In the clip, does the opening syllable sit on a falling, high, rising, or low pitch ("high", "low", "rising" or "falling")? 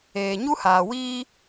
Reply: low